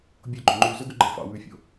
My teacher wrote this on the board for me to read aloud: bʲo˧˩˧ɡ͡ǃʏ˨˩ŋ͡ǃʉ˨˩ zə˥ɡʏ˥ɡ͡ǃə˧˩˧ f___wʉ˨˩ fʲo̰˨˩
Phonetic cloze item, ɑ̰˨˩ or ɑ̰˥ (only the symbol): ɑ̰˨˩